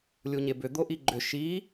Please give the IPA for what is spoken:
lʲ u ɲ e b ʏ d̪ o ʔ i ɡ͡ǃ ʏ ʃ i

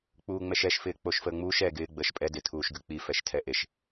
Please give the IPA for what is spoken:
k͡p uː ŋ͡m ɛ ʃ ɛ ʃ f ɪː k͡p o ʃ f əː ŋ͡m uː ʃ ɛ ɡ ɪː ɡ͡b əː ʃ pʼ ɛ d ɪ tʰ uː ʃ ɡ ʉ k͡p i f ɛ ʃ tʰ ɛ ʔ e ʃ

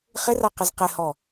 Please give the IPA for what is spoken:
χ ɪ r a q ɪ z q ɪ h ɔ

